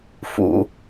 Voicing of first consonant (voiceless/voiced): voiceless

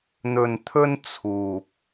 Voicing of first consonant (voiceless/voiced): voiced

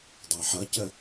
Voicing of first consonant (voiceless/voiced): voiced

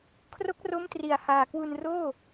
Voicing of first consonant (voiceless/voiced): voiceless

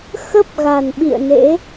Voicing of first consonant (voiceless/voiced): voiceless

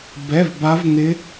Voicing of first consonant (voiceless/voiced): voiced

